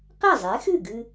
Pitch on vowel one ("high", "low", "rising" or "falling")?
falling